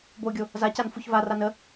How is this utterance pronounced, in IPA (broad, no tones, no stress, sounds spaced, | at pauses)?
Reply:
b o ɡʲ o | z a c a n f u ç v a r a n ə